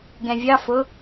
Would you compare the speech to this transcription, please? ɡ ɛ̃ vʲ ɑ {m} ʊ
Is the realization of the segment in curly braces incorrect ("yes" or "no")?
yes